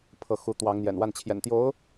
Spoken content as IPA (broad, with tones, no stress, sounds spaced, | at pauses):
pʰ ɤ˧˥ x u˧˥ t̪ w ɑ˧˥ ŋ n̪ j ɛ̰˨˩ n w a˥˩ n t͡ɕʰ j ɛ̰˨˩ n t̪ j o˧˥ ʊ̯